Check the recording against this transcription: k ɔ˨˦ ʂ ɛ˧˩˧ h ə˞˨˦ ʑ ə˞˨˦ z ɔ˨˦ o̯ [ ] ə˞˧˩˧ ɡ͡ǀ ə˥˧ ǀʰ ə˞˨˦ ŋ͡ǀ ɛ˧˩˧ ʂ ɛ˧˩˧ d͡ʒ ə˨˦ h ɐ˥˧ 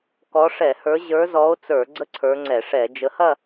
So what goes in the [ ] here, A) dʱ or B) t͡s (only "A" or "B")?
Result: B